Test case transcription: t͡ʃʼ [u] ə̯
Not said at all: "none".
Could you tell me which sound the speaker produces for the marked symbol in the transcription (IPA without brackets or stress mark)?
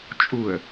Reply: u